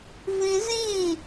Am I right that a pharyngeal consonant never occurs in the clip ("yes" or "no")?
yes